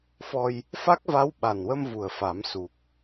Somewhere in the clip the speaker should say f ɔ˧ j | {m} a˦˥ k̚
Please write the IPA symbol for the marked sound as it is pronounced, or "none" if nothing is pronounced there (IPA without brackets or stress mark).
f